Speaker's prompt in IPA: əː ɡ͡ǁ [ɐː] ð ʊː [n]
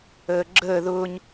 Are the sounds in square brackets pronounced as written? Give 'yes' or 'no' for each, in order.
no, no

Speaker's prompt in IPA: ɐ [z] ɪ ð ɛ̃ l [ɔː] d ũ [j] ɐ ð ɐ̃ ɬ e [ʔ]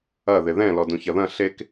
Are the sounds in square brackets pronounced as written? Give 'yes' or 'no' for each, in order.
no, no, no, no

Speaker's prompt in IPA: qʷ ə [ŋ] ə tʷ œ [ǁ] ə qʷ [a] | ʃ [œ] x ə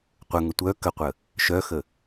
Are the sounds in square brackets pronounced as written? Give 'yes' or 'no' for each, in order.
yes, no, no, yes

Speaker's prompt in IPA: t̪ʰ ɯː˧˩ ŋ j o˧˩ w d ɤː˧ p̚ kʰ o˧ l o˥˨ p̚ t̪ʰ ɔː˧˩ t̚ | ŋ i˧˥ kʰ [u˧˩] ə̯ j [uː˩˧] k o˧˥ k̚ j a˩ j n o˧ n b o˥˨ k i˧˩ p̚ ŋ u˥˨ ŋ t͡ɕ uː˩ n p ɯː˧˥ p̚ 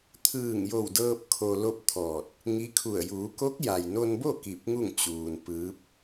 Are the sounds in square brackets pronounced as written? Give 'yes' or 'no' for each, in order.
yes, yes

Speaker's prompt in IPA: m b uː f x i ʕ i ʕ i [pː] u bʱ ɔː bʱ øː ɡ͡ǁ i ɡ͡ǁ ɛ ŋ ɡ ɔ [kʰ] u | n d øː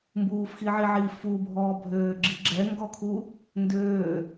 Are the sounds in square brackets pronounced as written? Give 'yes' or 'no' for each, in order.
no, yes

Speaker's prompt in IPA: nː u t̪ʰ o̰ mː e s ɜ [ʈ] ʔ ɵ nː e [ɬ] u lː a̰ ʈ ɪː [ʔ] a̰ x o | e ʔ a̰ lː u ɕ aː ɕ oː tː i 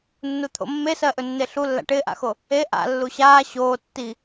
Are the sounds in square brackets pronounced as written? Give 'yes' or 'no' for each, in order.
no, yes, yes

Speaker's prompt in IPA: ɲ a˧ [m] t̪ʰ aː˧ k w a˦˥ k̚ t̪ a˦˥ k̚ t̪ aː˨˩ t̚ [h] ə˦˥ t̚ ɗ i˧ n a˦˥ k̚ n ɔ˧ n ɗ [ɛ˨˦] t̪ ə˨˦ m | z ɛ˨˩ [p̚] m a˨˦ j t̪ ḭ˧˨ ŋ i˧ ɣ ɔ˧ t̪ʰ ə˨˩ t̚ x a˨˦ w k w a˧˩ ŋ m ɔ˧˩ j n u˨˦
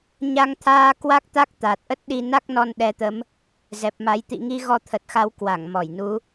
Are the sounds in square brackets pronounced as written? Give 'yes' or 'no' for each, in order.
no, no, yes, yes

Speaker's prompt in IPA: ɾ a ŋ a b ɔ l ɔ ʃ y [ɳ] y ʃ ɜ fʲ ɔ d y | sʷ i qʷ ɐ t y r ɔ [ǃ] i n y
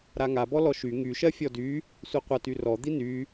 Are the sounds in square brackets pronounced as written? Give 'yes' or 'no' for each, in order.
no, no

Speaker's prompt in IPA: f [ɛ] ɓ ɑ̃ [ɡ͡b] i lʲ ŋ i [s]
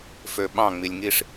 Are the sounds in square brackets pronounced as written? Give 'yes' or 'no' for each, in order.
no, no, no

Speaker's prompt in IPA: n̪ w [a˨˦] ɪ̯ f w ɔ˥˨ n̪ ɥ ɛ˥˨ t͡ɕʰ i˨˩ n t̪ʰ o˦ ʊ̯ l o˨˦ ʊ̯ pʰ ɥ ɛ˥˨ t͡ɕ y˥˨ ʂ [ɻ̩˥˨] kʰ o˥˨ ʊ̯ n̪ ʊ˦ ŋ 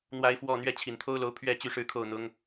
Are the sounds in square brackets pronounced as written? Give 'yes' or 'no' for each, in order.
no, yes

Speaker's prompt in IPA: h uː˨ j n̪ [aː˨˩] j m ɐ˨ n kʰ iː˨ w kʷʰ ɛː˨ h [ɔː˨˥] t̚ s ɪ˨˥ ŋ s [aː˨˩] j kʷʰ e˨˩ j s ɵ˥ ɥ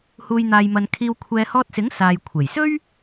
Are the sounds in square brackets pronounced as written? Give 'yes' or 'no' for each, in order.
no, no, no

